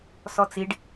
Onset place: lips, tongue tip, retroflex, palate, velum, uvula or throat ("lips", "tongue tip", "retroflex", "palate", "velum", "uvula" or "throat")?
tongue tip